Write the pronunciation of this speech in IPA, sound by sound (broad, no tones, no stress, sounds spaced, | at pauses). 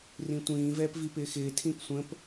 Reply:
r ĩ tʷ ĩː v ɛː p v i p ɪː x ɪː tʰ ĩ p sʷ ə̃ p